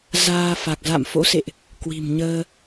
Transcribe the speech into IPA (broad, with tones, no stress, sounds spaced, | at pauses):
z aː˧ f a˨˩ k̚ z a̰˧˨ m f o̰˧˥ s ḛ˧˨ ʔ | k w i̤˨˩ m ɲ əː˧